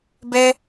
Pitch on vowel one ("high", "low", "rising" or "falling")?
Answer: high